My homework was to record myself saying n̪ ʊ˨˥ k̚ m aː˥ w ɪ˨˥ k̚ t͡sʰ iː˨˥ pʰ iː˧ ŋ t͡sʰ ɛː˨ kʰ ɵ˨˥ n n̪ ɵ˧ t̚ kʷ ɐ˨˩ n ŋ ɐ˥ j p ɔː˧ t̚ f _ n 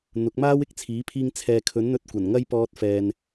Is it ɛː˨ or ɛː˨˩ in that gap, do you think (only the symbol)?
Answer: ɛː˨